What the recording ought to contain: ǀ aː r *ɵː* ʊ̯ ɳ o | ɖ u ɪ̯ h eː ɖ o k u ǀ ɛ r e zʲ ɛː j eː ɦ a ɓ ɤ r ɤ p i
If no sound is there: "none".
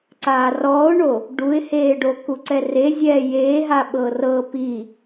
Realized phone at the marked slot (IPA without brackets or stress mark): ɔː